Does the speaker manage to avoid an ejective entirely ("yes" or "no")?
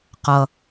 yes